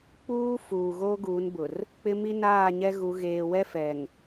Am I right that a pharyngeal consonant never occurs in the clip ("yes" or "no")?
yes